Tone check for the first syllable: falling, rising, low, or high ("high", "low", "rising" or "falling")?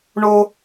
high